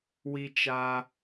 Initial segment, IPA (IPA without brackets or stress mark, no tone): w